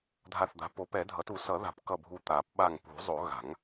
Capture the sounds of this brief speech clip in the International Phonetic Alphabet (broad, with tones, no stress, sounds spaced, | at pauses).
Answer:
dʱ a˧˩ θ d̪ a̤˩˥ p o˩˥ p ɛ˨˩˦ dʱ ʌ˩˥ t u˨˩˦ s ʌ˨˩˦ ð a̤˨˩˦ p k ʌ˧˩ bʱ u˧˩ t̪ a˨˩˦ p ɓ a˧˩ ŋ p ṳ˨˩˦ zˤ o˨˩˦ ɣ a̤˨˩˦ ŋ